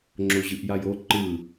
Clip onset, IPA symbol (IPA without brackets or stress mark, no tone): ŋ͡ǁ